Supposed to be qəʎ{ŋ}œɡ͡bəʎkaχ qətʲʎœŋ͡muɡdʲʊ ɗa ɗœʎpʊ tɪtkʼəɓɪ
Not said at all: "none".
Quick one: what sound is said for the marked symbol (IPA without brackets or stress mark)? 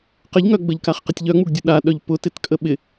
ŋ